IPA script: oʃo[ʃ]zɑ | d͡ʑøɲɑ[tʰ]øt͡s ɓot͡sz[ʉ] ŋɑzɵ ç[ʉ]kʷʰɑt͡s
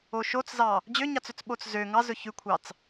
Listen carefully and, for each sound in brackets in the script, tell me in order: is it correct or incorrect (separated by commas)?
incorrect, incorrect, incorrect, correct